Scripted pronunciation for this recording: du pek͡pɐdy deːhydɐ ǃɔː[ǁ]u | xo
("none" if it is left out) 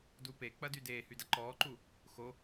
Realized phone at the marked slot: ǃ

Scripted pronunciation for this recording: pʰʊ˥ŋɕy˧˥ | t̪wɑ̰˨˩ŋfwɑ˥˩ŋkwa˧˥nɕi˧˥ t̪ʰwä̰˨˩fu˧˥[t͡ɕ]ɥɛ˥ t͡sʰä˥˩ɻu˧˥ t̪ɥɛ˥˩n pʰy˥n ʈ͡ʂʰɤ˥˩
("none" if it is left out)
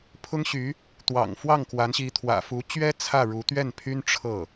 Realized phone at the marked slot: t͡ɕ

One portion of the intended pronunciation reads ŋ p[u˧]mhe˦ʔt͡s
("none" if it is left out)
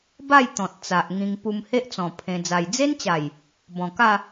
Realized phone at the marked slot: u˧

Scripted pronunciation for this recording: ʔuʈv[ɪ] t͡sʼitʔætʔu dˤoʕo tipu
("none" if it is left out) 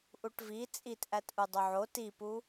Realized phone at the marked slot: i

